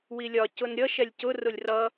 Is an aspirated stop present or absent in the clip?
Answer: absent